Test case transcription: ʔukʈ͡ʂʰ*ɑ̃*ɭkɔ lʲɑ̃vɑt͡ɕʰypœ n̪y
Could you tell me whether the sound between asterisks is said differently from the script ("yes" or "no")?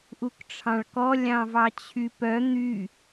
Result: no